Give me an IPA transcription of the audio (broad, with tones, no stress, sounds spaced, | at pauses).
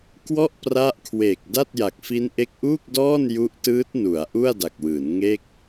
k w ɔ˥˩ ʔ p r a˦˥ ʔ kʰ w eː˨˩ k̚ d a˥˩ t̚ j a˨˩ k̚ f i˦˥ n ʔ e˦˥ k̚ ʔ uː˥˩ k̚ d ɔː˥˩ n j u˦˥ ʔ t ɯː˦˥ t̚ n u˩˦ a̯ ʔ u˥˩ a̯ d a˨˩ k̚ w ɯː˩˦ n ŋ e˥˩ k̚